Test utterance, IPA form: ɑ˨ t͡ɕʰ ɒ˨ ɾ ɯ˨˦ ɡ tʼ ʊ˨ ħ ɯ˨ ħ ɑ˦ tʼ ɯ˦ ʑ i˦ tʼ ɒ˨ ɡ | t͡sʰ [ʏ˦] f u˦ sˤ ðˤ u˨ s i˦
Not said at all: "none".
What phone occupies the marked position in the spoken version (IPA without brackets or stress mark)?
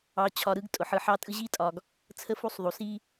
ə˦